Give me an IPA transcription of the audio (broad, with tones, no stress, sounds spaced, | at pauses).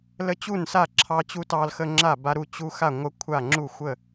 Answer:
l ə˦ t͡ɕ u˥˩ n s a˥˩ ǁʰ ɑ˦ t͡ɕ u˦ t ɑ˦ l x ə˦ ŋ͡ǁ a˥˩ b a˦ ɾ u˥˩ t͡ɕ u˦ x a˥˩ ŋʷ ə˦ kʷʰ a˥˩ ŋ͡ǁ u˥˩ xʷ ə˥˩